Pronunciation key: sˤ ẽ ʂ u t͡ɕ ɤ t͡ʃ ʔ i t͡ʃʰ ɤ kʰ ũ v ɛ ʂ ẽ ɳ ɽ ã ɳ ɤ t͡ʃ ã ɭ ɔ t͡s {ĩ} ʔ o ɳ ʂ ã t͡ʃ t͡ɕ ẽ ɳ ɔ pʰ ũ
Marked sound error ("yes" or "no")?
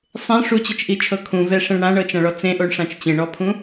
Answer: yes